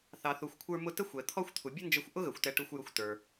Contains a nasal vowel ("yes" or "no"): no